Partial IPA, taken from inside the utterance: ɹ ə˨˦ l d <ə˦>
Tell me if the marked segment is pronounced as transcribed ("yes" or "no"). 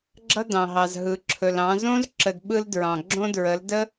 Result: yes